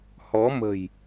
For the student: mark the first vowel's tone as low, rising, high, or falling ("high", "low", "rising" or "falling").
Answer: rising